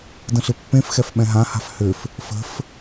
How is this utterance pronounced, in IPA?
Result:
də̃ɬɪpːẽfxɛf ɓɛ̃ɦãha̤f hʏf | fə̤f

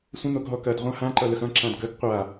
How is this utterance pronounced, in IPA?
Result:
sʷə̃ n̪oɡɦɔkɐd ʁʷãhã ǃʌləxɐ̃ ǁãdɡəɡ qʷa

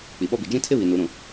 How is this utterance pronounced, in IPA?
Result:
k͡pi˨ɓɔ˦bi˨ d͡ʒĩ˦tʰɪ˦βi˨ nu˨˦ɾũ˨

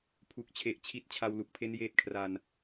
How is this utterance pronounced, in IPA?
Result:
pʰu˨˩k̚t͡ɕʰe˨˩ʔ t͡ɕʰi˦˥t̚ t͡ɕʰa˧wlu˨˩k̚pʰe˦˥n jeː˦˥t̚kʰra˧n

